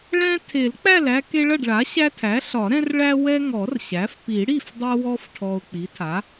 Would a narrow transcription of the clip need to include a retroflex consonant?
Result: yes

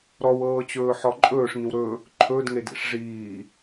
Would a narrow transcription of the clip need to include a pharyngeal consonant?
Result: yes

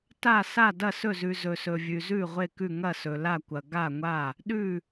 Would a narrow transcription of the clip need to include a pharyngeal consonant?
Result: no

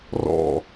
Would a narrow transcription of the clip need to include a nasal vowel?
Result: no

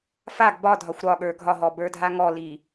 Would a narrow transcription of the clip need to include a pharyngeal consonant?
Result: no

